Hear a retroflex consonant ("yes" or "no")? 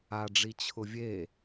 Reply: yes